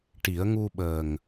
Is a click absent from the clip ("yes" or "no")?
yes